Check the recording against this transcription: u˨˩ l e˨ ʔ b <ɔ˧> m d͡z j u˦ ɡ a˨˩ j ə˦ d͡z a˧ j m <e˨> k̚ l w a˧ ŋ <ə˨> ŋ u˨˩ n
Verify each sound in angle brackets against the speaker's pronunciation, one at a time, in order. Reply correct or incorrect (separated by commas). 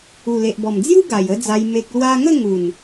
incorrect, correct, incorrect